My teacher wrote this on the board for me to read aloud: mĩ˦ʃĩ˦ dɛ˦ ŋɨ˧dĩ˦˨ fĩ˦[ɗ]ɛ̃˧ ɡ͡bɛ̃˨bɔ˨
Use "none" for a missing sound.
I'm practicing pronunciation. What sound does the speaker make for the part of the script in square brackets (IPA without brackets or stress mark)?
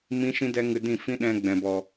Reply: ɗ